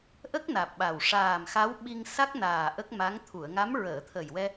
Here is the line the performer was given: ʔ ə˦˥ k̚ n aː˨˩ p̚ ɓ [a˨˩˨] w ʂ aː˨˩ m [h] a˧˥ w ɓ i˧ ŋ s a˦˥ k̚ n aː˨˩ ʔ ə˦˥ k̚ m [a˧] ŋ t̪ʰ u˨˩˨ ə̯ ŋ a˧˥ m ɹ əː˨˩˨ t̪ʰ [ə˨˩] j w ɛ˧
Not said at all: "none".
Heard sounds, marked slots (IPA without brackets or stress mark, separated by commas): a˨˩, x, a˧˥, ə˨˩